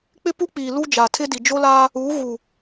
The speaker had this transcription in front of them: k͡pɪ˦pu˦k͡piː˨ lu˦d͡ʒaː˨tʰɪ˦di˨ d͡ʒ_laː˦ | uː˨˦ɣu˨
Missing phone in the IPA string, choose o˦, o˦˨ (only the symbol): o˦